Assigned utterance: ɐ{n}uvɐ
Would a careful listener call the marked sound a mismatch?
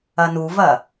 no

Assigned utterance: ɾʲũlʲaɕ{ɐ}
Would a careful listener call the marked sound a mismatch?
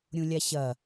no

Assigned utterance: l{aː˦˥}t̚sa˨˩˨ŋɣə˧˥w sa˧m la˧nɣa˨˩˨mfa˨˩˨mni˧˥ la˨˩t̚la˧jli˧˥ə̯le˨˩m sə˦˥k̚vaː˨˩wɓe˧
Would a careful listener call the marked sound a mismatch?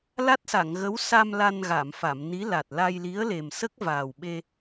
yes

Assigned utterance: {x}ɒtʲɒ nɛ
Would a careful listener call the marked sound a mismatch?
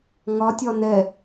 yes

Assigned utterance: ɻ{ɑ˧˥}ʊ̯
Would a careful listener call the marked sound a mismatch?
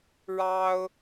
yes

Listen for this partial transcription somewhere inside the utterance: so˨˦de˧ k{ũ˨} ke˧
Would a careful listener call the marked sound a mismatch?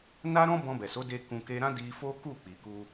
yes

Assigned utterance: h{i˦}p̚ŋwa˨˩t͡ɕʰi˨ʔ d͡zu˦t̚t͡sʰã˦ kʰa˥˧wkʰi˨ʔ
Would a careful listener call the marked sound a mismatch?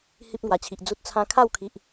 no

